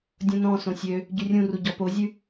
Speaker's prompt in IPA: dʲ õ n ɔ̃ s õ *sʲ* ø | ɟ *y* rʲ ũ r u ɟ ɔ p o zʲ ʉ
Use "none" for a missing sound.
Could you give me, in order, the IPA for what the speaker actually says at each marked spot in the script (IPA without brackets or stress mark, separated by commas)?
sʲ, y